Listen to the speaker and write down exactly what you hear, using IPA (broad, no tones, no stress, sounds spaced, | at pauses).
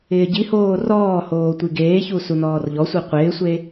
ɪː ɟ i h oː r ɔː h oː tʷ i ɡ eː ç u s u n ɔː r ʎ ɔ sʷ i qʷ ɪː sʷ e